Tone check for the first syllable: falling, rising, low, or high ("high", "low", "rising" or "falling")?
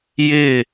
falling